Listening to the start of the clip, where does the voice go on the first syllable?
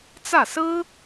falling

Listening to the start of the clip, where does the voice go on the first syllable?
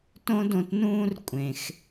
high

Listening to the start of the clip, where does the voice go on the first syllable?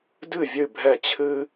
falling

